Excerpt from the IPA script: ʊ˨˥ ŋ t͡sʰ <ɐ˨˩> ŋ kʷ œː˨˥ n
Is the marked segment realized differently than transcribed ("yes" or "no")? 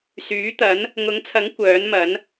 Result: yes